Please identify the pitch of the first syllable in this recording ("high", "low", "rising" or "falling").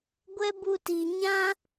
high